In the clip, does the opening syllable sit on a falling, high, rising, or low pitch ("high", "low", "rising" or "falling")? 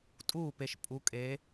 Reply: falling